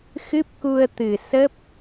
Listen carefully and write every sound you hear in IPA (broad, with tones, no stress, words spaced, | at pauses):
xɨ˦˥p̚ku˧ə̯t̪ɨ˨˩ sə˦˥p̚